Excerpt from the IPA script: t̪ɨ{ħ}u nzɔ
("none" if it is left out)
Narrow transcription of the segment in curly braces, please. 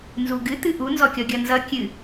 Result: ʔ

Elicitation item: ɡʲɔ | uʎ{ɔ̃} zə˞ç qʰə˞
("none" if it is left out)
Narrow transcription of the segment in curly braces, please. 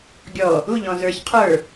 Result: ɔ̃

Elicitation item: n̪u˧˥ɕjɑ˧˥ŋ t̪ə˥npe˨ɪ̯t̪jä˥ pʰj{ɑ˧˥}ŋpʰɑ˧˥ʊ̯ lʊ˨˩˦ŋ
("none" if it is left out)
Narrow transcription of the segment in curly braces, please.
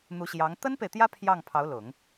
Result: ɑ˥˩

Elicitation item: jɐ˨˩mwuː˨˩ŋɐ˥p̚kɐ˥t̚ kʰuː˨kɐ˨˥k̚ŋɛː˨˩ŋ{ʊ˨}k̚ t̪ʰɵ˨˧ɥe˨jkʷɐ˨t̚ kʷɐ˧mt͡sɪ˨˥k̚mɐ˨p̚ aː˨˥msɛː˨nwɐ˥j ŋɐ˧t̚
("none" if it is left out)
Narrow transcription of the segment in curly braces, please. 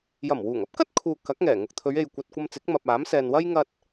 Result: ʊ˨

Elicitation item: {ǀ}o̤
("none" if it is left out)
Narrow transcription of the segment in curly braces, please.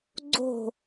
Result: ɡ͡ǀ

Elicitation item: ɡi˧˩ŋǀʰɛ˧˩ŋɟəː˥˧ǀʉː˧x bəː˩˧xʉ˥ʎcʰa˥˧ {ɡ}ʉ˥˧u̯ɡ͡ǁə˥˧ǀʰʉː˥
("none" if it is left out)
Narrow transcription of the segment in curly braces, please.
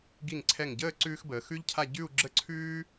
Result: ɟ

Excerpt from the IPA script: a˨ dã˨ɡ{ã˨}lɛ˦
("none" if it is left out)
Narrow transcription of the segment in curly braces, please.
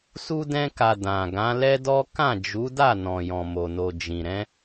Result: ã˨˦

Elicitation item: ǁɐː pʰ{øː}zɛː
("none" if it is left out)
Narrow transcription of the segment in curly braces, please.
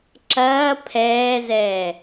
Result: ɛː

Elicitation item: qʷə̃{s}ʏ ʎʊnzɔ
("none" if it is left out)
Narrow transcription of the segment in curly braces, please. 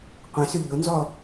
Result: s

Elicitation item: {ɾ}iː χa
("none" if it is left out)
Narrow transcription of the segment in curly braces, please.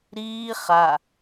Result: ɾ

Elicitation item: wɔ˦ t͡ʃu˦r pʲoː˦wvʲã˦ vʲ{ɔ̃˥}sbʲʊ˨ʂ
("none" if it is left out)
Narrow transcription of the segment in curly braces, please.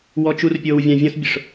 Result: ɔ̃˥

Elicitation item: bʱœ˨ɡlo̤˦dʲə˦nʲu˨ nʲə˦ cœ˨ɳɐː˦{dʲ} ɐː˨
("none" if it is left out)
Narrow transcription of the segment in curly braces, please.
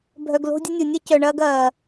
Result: ɡ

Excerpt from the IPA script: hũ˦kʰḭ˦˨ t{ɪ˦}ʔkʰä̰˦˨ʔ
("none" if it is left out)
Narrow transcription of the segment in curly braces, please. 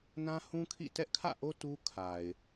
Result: ɛ˦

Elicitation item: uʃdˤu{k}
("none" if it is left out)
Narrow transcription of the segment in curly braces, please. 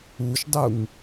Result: ŋ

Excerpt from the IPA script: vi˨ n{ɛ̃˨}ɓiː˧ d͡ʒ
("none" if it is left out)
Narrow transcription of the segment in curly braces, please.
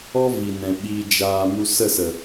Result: ɛ̃˨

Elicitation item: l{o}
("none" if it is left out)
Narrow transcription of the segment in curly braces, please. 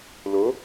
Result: o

